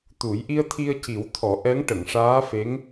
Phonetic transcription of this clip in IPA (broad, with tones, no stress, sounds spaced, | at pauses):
t̪ u˨˩˦ j ʔ i˧ ə̯ t̪ʰ i˧ ə̯ c i˨˩˦ w t̪ʰ ɔ˨˩˦ ʔ ɛ˧˥ ŋ ʈ ə˨˩˨ ŋ ʂ aː˧˥ f e˧˥ ŋ